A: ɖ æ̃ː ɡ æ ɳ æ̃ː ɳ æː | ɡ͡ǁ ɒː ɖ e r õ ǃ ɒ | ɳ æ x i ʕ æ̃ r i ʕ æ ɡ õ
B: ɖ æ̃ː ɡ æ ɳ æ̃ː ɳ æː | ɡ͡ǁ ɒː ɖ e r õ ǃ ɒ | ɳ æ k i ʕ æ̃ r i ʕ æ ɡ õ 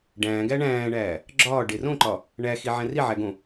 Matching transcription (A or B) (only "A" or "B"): A